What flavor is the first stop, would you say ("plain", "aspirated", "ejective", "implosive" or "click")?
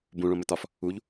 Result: plain